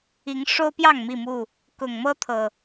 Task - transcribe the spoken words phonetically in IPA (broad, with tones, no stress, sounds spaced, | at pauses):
i˨˦ ŋ ʂ o˦ ʊ̯ p j ɑ˥˨ ŋ m i˥˨ m u˥˨ | k ʊ˨˩ ŋ m ɤ˦ t̪ʰ ɤ˨˩